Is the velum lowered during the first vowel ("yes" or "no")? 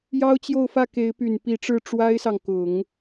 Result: no